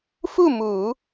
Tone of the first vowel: falling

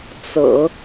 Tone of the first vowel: low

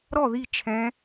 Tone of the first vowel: falling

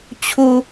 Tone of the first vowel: high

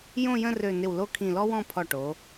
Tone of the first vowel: falling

